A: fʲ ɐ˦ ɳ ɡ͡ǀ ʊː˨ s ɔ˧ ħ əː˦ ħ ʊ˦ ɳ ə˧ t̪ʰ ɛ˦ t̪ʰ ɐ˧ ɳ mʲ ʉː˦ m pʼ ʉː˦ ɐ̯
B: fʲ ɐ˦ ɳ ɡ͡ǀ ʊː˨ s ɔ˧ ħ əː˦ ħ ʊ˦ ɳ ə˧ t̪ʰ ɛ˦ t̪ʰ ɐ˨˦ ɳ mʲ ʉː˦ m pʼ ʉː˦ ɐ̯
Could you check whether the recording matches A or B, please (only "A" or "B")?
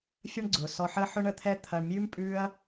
A